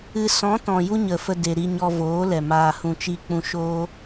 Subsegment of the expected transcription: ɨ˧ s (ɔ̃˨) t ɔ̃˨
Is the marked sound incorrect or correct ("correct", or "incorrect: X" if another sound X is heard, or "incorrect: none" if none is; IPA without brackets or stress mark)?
incorrect: ɔ̃˨˦